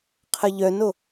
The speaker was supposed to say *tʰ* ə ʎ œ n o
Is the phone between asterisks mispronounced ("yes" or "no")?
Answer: yes